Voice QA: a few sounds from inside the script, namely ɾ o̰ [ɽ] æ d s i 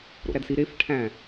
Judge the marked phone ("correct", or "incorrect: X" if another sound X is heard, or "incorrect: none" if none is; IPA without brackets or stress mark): incorrect: ɾ